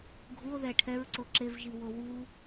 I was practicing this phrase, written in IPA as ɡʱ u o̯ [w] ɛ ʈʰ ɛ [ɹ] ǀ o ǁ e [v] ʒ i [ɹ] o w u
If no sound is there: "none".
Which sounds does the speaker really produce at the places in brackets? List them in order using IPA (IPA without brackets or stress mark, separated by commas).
ð, ɹ, v, w